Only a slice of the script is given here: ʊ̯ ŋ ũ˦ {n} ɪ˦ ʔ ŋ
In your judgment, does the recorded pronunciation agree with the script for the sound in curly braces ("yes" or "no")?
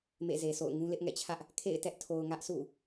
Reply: no